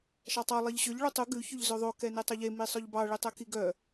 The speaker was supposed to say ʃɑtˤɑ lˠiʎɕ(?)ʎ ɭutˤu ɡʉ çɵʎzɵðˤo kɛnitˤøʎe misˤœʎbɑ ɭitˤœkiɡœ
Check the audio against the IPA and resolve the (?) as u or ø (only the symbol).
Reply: ø